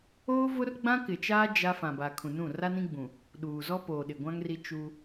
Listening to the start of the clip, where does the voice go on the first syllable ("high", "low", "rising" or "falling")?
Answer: high